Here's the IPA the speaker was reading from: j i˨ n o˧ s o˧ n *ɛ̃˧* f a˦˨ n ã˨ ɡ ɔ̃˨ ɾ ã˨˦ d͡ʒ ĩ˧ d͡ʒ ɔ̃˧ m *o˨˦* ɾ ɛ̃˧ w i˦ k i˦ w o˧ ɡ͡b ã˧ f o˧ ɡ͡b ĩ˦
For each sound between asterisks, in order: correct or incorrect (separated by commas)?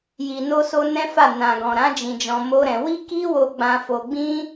incorrect, incorrect